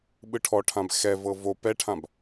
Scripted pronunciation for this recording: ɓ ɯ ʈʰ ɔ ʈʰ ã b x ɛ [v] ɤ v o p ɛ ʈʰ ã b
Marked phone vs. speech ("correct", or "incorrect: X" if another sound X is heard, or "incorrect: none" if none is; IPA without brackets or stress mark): correct